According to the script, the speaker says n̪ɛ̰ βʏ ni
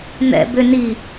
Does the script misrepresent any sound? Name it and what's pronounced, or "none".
β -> b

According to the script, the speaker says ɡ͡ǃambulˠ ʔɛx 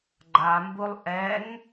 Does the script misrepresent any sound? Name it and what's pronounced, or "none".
x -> ŋ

